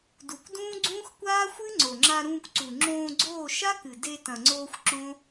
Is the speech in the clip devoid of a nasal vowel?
no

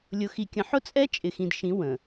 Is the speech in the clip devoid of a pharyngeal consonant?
no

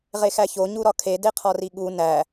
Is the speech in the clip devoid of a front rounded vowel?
yes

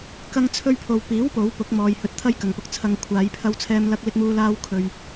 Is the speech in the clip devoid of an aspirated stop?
no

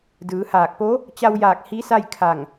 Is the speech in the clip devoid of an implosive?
yes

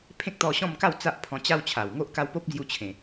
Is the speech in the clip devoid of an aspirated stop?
no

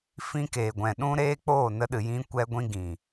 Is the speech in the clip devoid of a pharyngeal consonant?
yes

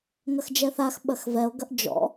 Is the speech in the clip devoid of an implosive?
no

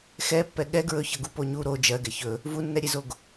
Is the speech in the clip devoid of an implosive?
no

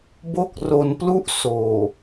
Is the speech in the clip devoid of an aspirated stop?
yes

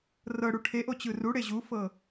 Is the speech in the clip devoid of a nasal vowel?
yes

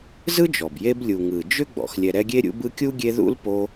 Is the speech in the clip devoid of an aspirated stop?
yes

